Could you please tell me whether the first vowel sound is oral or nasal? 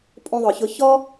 nasal